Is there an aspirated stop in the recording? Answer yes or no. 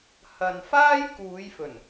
no